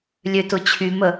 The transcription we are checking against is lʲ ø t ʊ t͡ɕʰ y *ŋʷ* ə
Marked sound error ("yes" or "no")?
yes